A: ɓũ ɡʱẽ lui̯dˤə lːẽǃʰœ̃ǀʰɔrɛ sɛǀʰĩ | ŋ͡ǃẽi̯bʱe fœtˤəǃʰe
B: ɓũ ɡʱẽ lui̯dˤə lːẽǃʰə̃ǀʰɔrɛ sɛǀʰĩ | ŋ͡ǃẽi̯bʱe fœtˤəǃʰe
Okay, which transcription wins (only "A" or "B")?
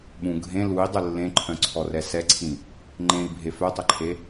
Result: A